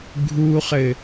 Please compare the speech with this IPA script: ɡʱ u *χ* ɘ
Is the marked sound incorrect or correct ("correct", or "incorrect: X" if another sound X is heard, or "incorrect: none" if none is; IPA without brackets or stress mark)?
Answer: correct